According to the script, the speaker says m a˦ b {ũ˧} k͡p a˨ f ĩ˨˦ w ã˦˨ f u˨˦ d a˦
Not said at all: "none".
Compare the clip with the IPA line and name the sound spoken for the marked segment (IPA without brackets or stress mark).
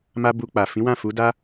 u˧